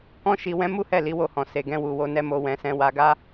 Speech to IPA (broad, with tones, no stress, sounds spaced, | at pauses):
k ɔ̃˦ ʃ i˧ w ɛ̃˦ m u˦ h ɛ˦˨ l i˨˦ w o˦˨ h ɔ̃˨ s e˨ ɡ ɛ̃˧ w u˨ w o˧ n ɛ˧ m o˧ w ɛ̃˧ s ɛ̃˧ w a˧ ɡ a˦